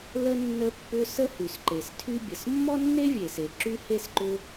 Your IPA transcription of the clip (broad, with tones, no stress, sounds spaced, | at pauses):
l ə˥ nː ə˥ pː ʏ˥ s ə˥ h y˩ s ǃ e˩ s tʰ y˥ bʲ ə˩ s mː ɔ˥ nː e˥ vʲ e˩ s e˩ ǁ y˥ h e˥ s ǃ ʏ˥